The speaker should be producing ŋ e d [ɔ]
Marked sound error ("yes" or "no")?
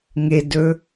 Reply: yes